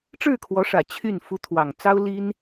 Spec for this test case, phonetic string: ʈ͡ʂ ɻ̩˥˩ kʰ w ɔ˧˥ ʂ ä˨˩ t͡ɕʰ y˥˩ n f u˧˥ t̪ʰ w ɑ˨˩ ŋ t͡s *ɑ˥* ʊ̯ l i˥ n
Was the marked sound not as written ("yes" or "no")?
no